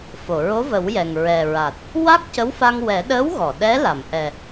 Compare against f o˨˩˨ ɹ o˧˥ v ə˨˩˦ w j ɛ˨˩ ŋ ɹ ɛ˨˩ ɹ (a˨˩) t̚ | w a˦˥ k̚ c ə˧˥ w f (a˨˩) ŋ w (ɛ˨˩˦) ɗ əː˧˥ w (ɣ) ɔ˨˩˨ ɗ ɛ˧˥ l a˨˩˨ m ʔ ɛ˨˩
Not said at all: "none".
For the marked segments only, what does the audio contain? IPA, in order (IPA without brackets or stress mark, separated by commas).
a˨˩, a˧, ɛ˨˩˦, ɣ